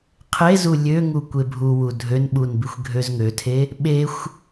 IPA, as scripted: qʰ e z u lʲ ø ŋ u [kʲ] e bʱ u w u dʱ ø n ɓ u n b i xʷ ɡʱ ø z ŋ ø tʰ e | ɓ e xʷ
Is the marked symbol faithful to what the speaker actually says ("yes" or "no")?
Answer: no